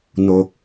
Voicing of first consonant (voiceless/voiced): voiced